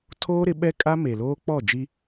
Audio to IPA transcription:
tʰoː˦ɾɪ˨˦ ɓɛ˦kʼa˦ me˨loː˦ k͡pɔ˦˨d͡ʒi˦

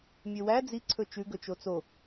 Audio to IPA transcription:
mʲøwæ d͡zi ǀʰɵt͡ʃʉ ɡɵt͡ʃot͡so

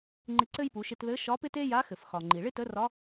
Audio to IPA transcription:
ŋ͡ǃɪ˧ǀɘ˥jpu˩˧ʃɪ˧t ðɘ˧˥ʃɒ˧˥pɪ˥t e˥ja˧˥ xɘ˩fxɒ˩ŋ͡ǃi˩ ɭɪ˥tə˧˥rɒ˧˥

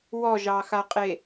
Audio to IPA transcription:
wɔʒɑxaqʼe

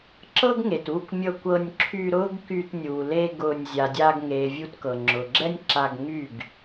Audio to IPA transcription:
ǁɤ˦ɡŋe˨t u˦˨kʷmʲɤ˧kʷ ɤ˧nʲǁʰy˧ɾʊː˦ɡky˧t nʲu˨ le˧ ɡʊː˧nʲ zʲa˨dʲaː˧ɡŋeː˨ vʲu˧tkɤ˨ŋ͡ǁʊː˨ɡ͡ǁɛ˦nʲ ǁa˧ɡ ŋy˦˨ɡ

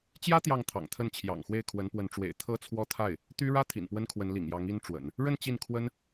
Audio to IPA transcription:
t͡ɕjä˥ t̪jɑ˥˩ŋt̪ʰɑ̰˨˩ŋt̪ʰə˥˩n t͡ɕʰjɑ̰˨˩ŋxwe˥˩ɪ̯kʰwə˧˥npwə˧˥n ʈ͡ʂwḛ˨˩ɪ̯ t̪ʰɤ˥t͡sʰwɔ˥˧t̪ʰa˥˩ɪ̯ | t̪y˥ ɻä˥ t̪ʰḭ˨˩npwə˥n kʰwə˧˥nlḭ˨˩ŋjɑ˧˥ŋ i˥nʈ͡ʂwə̰˨˩˦n | ɻə˥˧n t͡ɕi˥˩nkʰwə˥n

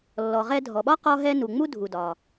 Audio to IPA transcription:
lːɔ˩ʁɛ˧dʱɔ˩ɓɒ˥ qɔ˧ɦɛ˧ nu˩ŋ͡mu˥ dʱu˩dɒ˩

